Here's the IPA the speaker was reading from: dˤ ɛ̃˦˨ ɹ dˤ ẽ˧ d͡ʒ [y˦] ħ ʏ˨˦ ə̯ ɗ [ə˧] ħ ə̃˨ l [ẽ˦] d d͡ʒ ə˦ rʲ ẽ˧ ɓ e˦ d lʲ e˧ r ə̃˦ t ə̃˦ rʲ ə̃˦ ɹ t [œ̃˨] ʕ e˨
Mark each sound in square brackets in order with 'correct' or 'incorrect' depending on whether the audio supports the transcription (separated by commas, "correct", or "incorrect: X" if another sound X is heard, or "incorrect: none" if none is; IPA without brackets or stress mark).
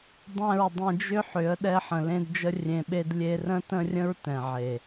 incorrect: ʏ˦, incorrect: ɛ˧, incorrect: ẽ˧, incorrect: ɛ̃˨